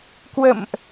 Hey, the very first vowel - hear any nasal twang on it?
no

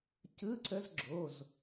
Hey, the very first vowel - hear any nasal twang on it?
no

